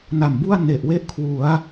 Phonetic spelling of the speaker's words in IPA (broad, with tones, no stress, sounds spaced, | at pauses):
n a˨˩ m b u˥˩ a̯ n e˨˩ ʔ w e˥˩ ʔ kʰ w u˩˦ a̯